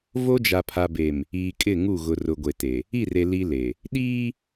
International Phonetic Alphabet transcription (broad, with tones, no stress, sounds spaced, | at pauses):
v o˦ d͡ʒ a˨ pʰ a˨ b e˨ m | iː˨ kʼ ɪ˦˨ ŋ u˦˨ ɣ ʊ˨ r ʊ˨ ɡʷ e˨ t e˨ | i˦˨ r e˨ l i˦ l e˨ | ɗ iː˦